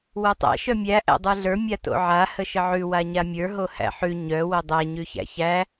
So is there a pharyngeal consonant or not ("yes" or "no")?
yes